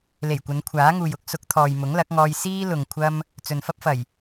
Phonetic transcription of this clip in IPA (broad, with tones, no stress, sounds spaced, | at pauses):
l e˨˩ j kʷ ɐ˨˧ n kʷʰ aː˨˥ ŋ uː˨ j ʊ˨˥ k̚ s ʊ˨˥ k̚ t̪ʰ ɔː˨ j m ʊ˨˥ ŋ l ɐ˨˥ k̚ ŋ ɔː˧ j s iː˥ l ʊ˨ ŋ kʷʰ ɐ˧ m | t͡s ɵ˨ n f ɐ˥ p̚ f ɐ˨˩ j